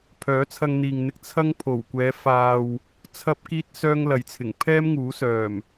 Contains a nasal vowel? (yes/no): no